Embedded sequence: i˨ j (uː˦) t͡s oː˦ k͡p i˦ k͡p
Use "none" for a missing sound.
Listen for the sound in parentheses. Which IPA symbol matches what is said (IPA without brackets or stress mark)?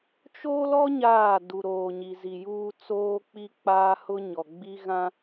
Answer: uː˦